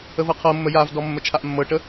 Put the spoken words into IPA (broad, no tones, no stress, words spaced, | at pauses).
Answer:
əvɤqʰɤmːə javdɔ mːət͡ʃʰaʔmːɤʈə